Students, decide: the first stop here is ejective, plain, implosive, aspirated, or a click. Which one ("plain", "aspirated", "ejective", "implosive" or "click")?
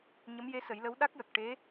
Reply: implosive